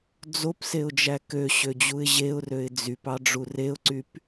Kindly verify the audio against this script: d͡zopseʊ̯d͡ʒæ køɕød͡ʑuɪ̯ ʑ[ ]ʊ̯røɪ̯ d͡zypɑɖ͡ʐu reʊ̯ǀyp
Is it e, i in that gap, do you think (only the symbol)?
e